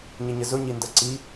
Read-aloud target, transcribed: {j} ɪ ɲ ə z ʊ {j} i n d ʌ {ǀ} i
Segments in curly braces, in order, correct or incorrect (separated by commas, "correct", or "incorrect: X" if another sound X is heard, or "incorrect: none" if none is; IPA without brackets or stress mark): incorrect: ɲ, incorrect: ɲ, correct